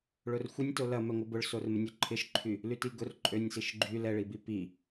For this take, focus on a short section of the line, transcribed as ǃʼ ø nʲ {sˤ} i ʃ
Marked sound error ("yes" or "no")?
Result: yes